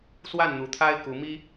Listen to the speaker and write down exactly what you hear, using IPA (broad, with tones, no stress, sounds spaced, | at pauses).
s w a˥˨ n n̪ u˨˩ t̪ʰ a˦ ɪ̯ k u˨˦ m i˦